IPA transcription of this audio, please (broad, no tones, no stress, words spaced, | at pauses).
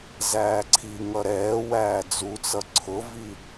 zæːǀʰiŋʌ ɾɛːwæː d͡zut͡sʌ ǀʰʊvi